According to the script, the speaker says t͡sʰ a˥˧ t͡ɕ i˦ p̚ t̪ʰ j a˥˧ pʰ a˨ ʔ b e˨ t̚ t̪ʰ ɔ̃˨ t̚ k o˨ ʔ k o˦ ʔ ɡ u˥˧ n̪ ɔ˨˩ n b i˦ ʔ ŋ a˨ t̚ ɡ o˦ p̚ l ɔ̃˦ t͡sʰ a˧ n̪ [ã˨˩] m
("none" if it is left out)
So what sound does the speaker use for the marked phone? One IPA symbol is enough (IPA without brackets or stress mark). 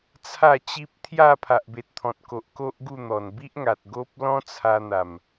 a˨˩